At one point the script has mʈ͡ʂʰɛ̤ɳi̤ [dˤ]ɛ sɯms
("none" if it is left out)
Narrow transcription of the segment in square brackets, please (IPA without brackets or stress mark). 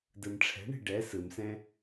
ɖ